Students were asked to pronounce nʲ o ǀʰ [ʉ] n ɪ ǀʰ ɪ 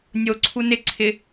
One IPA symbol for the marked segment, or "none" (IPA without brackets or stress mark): u